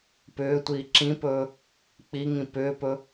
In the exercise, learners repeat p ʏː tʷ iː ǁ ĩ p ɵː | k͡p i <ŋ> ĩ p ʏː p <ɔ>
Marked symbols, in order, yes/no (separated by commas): yes, no